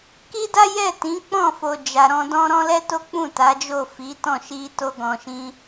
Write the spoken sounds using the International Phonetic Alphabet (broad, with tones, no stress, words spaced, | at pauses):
ki˦da˦ jɛ˦˨tĩ˨˦k͡pɔ̃˦˨fo˨ d͡ʒa˨ɾɔ̃˧dɔ̃˦ ɾɔ̃˦lɛ˦to˦ k͡pũ˦˨ ta˨˦d͡ʒo˦˨fi˨˦tɔ̃˦˨ ʃi˧to˧ɡɔ̃˨ʃĩ˧